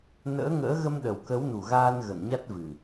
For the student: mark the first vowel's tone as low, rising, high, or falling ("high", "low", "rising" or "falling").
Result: rising